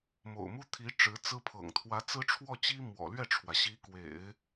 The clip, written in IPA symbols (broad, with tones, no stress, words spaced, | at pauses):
mo̰˨˩ʊ̯mu˥t̪ʰi˧˥ ʈ͡ʂɻ̩˧˥t͡sɹ̩˥pʰɤ̰˨˩ŋ t̪ʰwä˧˥t͡sɹ̩˥ʈ͡ʂʰwɔ˥˩t͡ɕi˥ mwɔ̰˨˩lɥɛ˥˩ʈ͡ʂʰwä˩ ɕi˧˥kwḛ˨˩˦ɪ̯